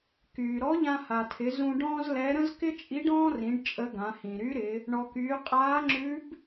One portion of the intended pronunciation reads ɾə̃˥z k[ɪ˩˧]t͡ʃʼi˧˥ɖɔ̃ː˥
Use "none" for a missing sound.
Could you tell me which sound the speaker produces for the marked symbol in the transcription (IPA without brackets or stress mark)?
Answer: ɪ˥